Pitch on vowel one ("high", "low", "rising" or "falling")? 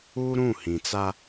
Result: high